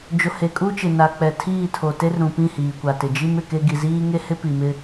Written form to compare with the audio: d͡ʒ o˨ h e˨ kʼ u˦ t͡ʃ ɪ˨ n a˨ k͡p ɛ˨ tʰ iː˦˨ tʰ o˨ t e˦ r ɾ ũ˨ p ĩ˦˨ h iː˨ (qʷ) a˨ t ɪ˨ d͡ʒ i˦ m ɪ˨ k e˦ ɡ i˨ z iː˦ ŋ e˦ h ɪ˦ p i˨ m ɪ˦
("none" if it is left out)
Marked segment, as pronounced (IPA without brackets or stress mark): kʷ